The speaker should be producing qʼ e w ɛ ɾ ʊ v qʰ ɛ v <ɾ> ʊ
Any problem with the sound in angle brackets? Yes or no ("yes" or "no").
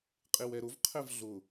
yes